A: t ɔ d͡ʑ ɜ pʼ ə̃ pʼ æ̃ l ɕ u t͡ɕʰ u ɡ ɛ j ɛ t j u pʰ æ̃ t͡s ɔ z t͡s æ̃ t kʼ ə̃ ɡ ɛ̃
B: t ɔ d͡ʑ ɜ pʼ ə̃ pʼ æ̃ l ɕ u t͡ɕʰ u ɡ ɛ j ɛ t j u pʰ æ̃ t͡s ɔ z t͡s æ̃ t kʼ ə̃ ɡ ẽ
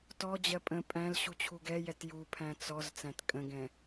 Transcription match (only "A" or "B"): A